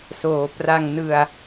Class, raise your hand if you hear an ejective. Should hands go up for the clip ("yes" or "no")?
no